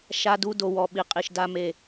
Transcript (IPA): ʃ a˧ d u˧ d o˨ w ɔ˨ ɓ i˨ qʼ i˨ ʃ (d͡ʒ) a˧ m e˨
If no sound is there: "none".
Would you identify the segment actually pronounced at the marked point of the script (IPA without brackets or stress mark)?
d